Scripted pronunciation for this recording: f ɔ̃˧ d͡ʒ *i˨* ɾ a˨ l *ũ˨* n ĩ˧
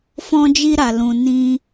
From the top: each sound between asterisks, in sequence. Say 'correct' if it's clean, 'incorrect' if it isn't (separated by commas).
incorrect, correct